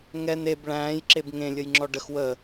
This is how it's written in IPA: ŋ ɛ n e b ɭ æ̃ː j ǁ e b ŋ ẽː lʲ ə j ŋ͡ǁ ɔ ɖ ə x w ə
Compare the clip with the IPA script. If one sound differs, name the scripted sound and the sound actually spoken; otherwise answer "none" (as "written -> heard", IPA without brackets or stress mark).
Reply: ẽː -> ẽ